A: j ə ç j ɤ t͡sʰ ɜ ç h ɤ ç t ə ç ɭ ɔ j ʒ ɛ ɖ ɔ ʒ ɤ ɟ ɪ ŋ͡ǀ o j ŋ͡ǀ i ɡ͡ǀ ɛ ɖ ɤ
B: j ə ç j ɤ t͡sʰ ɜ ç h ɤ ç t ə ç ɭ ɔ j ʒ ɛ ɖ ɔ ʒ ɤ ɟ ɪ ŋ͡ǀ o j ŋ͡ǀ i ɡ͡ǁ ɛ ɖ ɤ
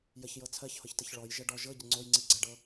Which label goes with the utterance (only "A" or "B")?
A